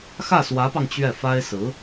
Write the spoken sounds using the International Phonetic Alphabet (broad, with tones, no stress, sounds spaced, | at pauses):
x ä˥˩ s w ä˧˥ p ɑ˧ ŋ t͡ɕ ɥ ɛ˥˩ f a˥ ɪ̯ s ɹ̩˧˥